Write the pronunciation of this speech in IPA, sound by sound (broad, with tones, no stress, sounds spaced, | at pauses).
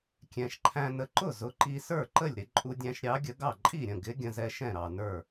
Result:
kʲ ɛ̃˨˩ ʃ ǃʰ æ̃˧ n ə˨˥ ǃ ʊ˥˩ z ʊ˨˥ ǃ i˧ s ə˞˥˩ ǃ ə˥˩ lʲ ɾ ɪ˧ ǃʼ u˧ dʲ æ̃˧ ʃ ɾʲ ɑ˨˥ ɡʲ ə˨˥ ɡ ɑ˥˩ ǃʼ i˥˩ ɾʲ ə̃˥˩ ɡ ɪ˨˥ ɡʲ ə̃˧ z ɛ˧ ʃ ɛ̃˥˩ ɾ ɑ˨˩ n ə˞˥˩